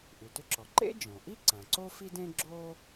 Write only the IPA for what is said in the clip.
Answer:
ʔ ʉ˩ t ʏ˥ ǁ ɔ˩ ǃ ḛ˥ d͡ʒ ɔ̃˩ ʔ i˥ ǀ ã˩ ǀ o˥ f i˥ d ẽ˥ ɡ͡ǁ o˥

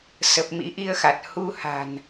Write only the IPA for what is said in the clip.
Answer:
s ə˨˩ p̚ m ḭ˧˥ ʔ i˧ ə̯ x a˨˩ t̚ h u˧ h a̤˨˩ n

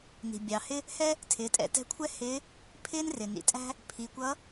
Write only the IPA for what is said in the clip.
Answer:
n i̤˩ bʲ ɑ˩ h ɪ˥ | h ɛ˥ | tʰ ɪː˩˧ tʼ ɛ̰˩˧ t ɛ̤˧˥ kʷʰ ɛ˥ h ɪː˧˥ | pʰ ɪː˥ n r ɪ˩ n ḭ˩ tʼ æ̤˥ | pʰ i˩˧ kʷ ʌ˧˥

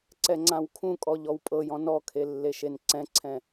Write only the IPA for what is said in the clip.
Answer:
ǀ ɛ ŋ͡ǀ ã w kʰ ũ kʼ ɔ ʎ ɔ w pʼ ɤ j ɔ̃ n ɔ kʰ e lː e ʃ e n ǀ ɛ̃ ǀʰ ɛ̃

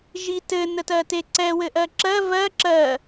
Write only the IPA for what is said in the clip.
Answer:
ʒ i t ɘ n ə t ɜ t e ǀ ɛ w ɘ ʔ ɜ ǁ ɜ v ɜ ǁ ɜ

